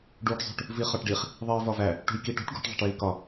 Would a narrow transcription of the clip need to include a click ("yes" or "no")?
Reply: no